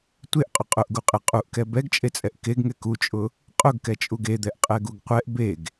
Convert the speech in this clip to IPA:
tʷ e ʔ qʼ ʊ qʼ ʊ ʔ ɡ u qʼ e qʼ u ʔ k ɛ b ɛ ɡ t͡ʃʼ e t͡sʼ ɛ ʔ k e ɡ ŋ ɛ k u t͡ʃʼ ʊ | qʼ ʊ ɡ k ɛ t͡ʃʼ u ɡ e d̪ ɛ ʔ qʼ ɛ ɡ u ɡ qʷ ɛ ʔ b e ɡ

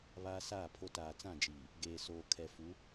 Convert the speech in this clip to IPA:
β aː˦ s aː˦˨ pʰ o˦ t aː˨ t͡s ã˦˨ d͡ʒ iː˨ | ɡ eː˨ s oː˨ kʰ ɛ˨ f u˨˦

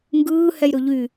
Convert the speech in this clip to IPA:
ŋ ɡ ɯː h ɛ j ɾ ɵ ʎ y

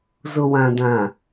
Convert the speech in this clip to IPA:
z ʊ˨ w ã˨ d ã˨

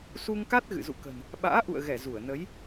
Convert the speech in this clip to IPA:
s u˧ ŋ k a˦˥ t̚ ɣ ɨ̰˧˨ z ṵ˧˨ k ə̤˨˩ n | ɓ a̰ː˧˥ ʔ ṵ˧˨ ə̯ ɣ ɛ˧˩ z u˧˩ ə̯ n ə˨˦ j

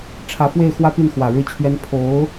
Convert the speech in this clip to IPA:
ʈ͡ʂʰ ä˧˥ f w e˥˩ ɪ̯ x w ä˥ p i˥˩ n x w ä˨˩ ɻ ɻ̩˥˩ t͡ɕʰ ɥ ɛ˥ n pʰ o˧˥ ʊ̯

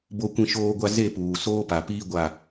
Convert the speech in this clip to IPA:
b o˦ kʷ ĩ˦ ʃ oː˦ ɡʷ a˦ z e˦˨ p uː˨ s oː˦ p a˨ p iː˦ ɡʷ a˦˨

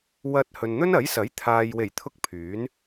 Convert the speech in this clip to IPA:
w ɐ˧ t̚ h ɵ˨ n n̪ ɵ˥ n ɐ˨˥ j s ɐ˨˥ j t̪ʰ aː˨ j w e˨˩ j t̪ʰ ʊ˧ k̚ pʰ yː˨˥ n

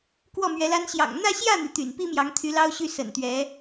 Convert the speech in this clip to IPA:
k w ɔ˥˩ m ɥ ɛ˧˥ l a˥ n ɕ j ɑ̰˨˩ ŋ n̪ ä˥˧ ɕ j ä˥˩ n̪ y˩ t̪ y̰˨˩ n p i˥ m j ɑ˧˥ ŋ t̪ʰ y˧˥ l ɑ˥ ʊ̯ ɕ y˥˩ s ə̰˨˩ n t̪ ɥ ɛ˧˥

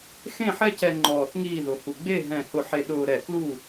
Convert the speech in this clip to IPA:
x ẽ˥˨ ħ ɛ˥ c ɛ˧ ŋ͡ǃ ɔː˧˩ θ ŋ iː˥˨ ð ʊ˧˩ h u˧˩ ɡ͡b e˥˨ ɦ ɛ̃˧˩ h ʊ˧˩ ħ e˧ ɗ ʊː˧ ɾ ɛ˧˩ k l u˥˨

